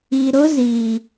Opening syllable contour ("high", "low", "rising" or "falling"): low